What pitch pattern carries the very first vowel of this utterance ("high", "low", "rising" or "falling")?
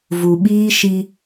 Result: low